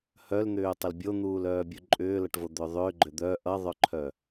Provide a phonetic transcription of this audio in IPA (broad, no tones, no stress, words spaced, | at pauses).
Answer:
hœln̪ʏːtˤəl bʲon̪uːlœːbʲu ǃʼʏːlʌʈvod̪ʏː ðˤʏːɡ͡ǃʏ d̪œ ʔʌðˤœǃʰœ